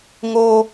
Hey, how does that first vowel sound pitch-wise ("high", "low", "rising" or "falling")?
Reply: high